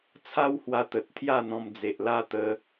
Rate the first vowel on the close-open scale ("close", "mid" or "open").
open